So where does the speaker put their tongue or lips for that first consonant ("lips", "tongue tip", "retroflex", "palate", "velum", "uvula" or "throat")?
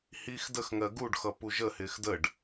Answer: throat